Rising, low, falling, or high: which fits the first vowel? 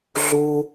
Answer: high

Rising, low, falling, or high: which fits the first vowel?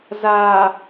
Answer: low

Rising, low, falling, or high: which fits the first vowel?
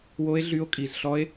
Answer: high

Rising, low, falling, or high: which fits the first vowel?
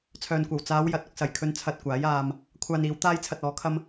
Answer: low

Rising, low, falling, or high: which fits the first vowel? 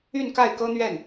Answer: falling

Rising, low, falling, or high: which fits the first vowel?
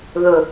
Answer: low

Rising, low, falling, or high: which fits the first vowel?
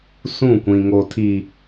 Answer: falling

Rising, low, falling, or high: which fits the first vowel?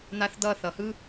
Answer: high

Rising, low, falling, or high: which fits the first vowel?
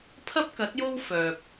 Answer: high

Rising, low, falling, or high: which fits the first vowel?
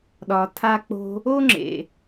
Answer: low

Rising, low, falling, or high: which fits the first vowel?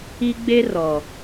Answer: high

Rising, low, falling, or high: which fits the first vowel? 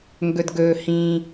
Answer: low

